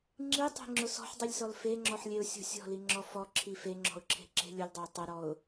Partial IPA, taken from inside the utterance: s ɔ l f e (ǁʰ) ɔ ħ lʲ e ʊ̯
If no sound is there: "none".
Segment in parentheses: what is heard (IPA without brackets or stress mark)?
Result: ŋ͡ǁ